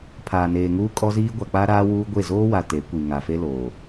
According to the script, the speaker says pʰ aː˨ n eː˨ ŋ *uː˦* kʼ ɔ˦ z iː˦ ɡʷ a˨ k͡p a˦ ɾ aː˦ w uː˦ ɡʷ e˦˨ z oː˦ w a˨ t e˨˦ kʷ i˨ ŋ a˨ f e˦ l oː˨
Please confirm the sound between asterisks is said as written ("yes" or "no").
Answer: yes